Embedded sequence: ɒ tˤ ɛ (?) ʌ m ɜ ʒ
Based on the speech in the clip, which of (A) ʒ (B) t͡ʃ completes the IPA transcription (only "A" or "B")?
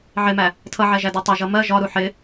A